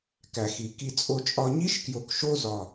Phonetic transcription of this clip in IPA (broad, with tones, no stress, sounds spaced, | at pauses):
k æ˩ x i˩ k i˧ t͡sʼ o˧ t͡ʃʼ ɒ˧ ɲ i˥ ʃ k j o˧ k ʃ o˥ z ɒ˧